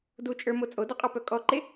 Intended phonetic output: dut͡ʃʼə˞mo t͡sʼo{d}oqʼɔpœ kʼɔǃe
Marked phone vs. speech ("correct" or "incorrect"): correct